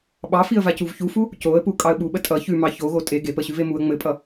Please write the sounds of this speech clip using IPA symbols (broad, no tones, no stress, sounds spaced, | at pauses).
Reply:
ɓ ɑ f i ə̯ v a c u v ç u f u | c o ə̯ p u kʼ ɑ ə̯ ɓ u ɓ ə tʼ ʌ ç ʉ m ɑ ç o ɣ o tʼ e ɡ e p ə ɕ ʉ v e m u ə̯ ŋ͡m ɘ pʼ ʌ